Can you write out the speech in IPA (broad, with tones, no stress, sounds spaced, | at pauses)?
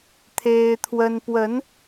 t̪ʰ e˦ ɪ̯ t̪ʰ w ə˦ n p w ə˨˦ n